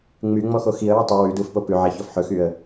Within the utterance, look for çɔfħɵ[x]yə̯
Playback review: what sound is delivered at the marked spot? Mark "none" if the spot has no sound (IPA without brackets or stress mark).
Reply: x